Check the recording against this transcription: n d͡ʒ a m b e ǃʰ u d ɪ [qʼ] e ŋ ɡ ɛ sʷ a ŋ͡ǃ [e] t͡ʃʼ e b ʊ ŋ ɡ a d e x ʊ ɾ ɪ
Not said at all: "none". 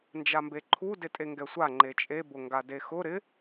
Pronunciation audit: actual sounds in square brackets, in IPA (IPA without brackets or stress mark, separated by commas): tʼ, e